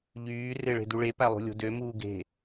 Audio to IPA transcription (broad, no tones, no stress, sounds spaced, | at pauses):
ʎ yː r e ɭ e̤ d u ɭ e p æ lˠ ṳ lʲ o̤ d ø m uː ɡ e̤